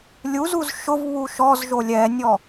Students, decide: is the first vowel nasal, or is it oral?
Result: oral